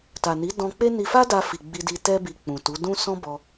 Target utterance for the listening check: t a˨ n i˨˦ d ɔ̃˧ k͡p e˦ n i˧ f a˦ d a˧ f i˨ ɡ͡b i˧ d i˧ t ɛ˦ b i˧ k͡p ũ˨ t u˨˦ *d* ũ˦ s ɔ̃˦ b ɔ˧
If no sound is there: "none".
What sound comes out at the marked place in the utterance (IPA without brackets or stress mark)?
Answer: d